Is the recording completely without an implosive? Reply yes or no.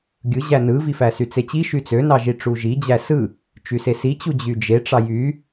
yes